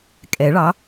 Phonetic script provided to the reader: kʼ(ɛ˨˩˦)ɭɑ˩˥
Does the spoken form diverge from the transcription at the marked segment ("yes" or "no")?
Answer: no